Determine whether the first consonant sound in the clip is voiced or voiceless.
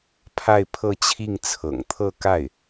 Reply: voiceless